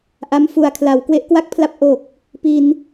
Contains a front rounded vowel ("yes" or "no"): no